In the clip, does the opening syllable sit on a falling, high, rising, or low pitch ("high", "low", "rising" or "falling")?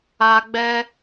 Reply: high